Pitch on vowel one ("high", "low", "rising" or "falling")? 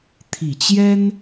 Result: low